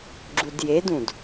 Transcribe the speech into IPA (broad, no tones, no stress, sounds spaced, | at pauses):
ɡ͡ǁ u d j e d ũ d